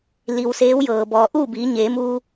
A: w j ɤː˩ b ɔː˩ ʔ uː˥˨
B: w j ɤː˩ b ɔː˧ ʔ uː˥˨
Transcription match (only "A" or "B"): A